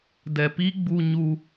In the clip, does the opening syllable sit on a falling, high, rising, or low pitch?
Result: low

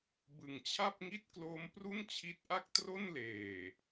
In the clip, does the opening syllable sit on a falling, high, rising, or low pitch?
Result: low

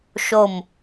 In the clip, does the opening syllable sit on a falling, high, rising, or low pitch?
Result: falling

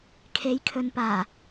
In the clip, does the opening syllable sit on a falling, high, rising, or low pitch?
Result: rising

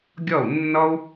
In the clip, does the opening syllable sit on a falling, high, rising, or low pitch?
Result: falling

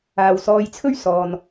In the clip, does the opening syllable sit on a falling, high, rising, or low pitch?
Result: low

